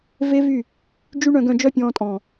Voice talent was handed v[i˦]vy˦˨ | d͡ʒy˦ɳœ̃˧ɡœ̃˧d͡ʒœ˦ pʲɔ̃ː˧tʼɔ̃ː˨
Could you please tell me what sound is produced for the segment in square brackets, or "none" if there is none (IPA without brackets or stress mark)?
e˦